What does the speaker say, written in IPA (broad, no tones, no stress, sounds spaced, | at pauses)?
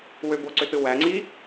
w ø b o ǀ ø t ɯ w æ ŋ͡ǀ i